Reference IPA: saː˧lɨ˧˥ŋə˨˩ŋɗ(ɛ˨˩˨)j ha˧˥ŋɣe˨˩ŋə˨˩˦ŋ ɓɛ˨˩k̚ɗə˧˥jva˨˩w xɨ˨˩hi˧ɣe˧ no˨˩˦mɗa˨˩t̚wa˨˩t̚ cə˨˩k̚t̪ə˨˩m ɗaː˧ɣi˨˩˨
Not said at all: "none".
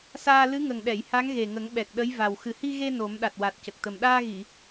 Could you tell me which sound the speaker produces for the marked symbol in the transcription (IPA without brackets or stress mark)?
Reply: ɛ˨˩˨